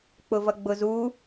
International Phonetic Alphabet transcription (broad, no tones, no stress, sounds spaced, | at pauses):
k͡p ʊ v ʌ ɡ͡b ʊ z u